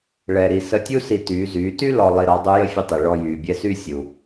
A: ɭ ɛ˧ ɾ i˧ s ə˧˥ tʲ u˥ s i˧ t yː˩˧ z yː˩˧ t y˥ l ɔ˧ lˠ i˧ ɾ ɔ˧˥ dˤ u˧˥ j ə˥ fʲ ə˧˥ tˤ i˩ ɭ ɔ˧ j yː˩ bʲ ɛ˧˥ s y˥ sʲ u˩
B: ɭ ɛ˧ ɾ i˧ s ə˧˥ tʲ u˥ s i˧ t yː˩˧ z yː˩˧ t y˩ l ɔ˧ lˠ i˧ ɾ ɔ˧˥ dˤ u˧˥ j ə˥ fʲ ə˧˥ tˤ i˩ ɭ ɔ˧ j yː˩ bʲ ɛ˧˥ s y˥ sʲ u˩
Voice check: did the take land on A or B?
A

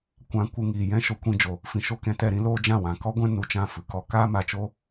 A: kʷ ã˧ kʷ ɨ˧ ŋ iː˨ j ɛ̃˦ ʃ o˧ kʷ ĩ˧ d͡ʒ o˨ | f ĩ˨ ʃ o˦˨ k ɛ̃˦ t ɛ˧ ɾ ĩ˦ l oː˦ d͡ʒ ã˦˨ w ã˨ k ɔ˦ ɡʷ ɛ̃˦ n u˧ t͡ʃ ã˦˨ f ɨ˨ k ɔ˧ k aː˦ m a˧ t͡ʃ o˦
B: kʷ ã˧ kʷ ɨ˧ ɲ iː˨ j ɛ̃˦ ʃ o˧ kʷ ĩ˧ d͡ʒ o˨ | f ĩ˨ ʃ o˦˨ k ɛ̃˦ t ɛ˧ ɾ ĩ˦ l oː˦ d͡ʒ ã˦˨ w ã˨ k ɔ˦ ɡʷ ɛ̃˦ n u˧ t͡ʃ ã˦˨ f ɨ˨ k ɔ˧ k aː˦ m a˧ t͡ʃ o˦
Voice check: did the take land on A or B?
A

